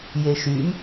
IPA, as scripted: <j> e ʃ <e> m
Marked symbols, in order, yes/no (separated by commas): yes, no